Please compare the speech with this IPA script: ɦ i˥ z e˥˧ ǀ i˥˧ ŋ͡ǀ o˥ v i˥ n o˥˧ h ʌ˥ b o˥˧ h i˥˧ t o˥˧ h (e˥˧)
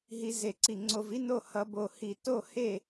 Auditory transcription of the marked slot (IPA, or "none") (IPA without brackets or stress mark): e˥˧